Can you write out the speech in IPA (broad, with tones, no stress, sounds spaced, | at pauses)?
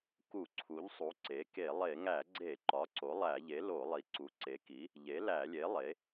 k u˧˩˧ ǀʰ u˩˥ ʎ sˤ u˩˥ ǀ e˩˥ k e˧˩˧ lˠ e˧˩˧ ŋ æ˧˩˧ ɡ͡ǀ e˧˩˧ ǃ ɒ˩˥ ǀ o˩˥ lˠ æ˧˩˧ ʎ e˩˥ l o˧˩˧ lˠ i˩˥ ǀ u˩˥ ǀ e˩˥ k i˩˥ | ʎ e˩˥ l æ˧˩˧ lʲ e˩˥ lˠ e˩˥